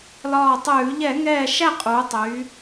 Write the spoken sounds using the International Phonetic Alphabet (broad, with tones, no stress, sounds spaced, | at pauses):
l ɒː˧˩ tˤ ʉː˧˩˧ ʎ ɛ˧˩˧ ŋ ɛː˧˩ ʃ æ˥˨ qʼ uː˩˧ tˤ yː˩˧